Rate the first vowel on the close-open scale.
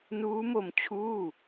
close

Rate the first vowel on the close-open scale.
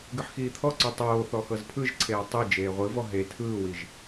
close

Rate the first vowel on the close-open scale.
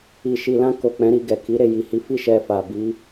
close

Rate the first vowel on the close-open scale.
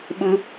close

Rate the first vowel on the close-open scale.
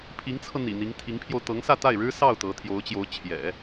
close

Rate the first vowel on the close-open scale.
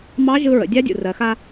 open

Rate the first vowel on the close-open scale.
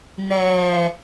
mid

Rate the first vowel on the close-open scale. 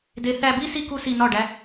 mid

